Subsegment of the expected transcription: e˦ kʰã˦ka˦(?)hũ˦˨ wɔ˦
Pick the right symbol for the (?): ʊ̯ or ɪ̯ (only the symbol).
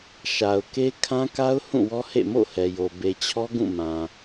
ʊ̯